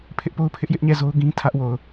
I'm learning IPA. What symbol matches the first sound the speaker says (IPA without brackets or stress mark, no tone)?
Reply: pʰ